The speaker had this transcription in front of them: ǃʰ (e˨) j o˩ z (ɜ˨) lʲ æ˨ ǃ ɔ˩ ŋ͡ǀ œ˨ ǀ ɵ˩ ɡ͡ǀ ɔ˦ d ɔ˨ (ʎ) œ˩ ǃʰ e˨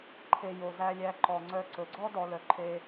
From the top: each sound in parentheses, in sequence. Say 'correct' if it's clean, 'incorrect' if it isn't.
incorrect, incorrect, incorrect

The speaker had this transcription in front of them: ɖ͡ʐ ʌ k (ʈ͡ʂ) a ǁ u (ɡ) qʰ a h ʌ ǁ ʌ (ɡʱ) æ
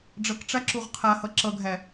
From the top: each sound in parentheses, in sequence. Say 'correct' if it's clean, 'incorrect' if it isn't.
correct, incorrect, correct

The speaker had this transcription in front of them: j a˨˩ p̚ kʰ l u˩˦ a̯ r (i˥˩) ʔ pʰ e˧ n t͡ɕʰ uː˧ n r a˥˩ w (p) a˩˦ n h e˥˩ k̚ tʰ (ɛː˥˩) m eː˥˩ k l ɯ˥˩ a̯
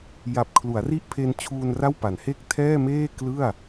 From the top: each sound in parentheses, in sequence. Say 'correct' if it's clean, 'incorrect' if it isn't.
correct, correct, correct

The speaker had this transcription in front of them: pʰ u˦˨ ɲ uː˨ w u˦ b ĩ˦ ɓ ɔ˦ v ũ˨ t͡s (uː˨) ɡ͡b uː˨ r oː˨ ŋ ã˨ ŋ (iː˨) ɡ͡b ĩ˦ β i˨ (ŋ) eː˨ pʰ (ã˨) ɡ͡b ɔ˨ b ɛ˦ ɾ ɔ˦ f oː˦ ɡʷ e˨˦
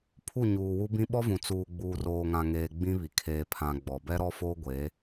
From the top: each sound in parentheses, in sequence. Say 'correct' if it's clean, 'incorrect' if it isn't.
correct, incorrect, incorrect, correct

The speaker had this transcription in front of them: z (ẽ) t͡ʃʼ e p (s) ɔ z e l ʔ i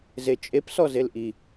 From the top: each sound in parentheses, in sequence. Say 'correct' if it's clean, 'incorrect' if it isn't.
incorrect, correct

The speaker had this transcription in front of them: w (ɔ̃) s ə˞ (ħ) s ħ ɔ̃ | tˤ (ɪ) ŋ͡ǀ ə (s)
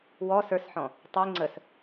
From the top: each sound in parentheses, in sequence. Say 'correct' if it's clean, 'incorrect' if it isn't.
incorrect, incorrect, incorrect, correct

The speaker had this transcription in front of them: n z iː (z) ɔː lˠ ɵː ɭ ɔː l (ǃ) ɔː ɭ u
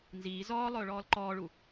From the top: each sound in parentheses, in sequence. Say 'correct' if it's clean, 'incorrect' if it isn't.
correct, correct

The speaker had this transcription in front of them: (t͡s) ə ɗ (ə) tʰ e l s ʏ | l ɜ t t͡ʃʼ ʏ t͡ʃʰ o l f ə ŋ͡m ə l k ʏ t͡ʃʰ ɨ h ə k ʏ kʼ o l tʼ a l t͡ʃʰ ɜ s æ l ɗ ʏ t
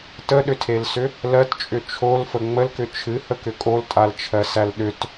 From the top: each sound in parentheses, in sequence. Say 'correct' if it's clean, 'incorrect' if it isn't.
incorrect, incorrect

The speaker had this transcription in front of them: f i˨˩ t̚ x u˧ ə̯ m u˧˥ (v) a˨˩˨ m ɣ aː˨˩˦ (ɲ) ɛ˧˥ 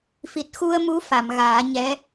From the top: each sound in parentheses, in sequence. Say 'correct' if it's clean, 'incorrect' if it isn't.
incorrect, correct

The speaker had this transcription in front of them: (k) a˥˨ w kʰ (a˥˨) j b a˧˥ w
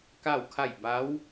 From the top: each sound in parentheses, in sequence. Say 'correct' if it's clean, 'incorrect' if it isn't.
correct, correct

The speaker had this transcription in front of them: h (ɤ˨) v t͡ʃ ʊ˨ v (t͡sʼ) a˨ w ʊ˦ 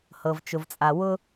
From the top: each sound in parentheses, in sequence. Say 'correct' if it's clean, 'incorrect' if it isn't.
correct, correct

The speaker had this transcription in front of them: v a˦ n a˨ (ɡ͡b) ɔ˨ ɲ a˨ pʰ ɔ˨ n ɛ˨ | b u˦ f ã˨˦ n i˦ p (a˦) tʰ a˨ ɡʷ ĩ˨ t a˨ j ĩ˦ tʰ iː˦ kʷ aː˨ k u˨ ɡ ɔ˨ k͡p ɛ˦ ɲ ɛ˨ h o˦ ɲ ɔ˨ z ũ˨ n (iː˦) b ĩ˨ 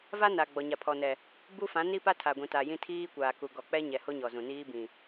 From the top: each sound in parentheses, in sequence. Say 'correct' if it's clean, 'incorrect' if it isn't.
correct, correct, correct

